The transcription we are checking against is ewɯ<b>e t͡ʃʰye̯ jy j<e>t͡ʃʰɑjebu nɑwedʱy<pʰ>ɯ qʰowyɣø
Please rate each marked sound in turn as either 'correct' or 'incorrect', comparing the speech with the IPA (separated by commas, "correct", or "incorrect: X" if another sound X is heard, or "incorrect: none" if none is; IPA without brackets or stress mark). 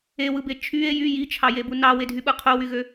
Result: correct, incorrect: i, incorrect: ɓ